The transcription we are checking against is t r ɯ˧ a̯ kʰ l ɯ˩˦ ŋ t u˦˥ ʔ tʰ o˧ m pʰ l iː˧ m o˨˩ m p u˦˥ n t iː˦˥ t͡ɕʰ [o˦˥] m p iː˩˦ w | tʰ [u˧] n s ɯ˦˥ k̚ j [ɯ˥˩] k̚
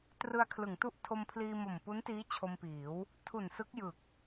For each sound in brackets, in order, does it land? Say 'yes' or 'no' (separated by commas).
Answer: no, no, no